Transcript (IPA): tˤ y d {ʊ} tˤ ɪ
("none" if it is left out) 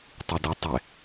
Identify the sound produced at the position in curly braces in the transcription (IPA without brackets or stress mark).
ʊ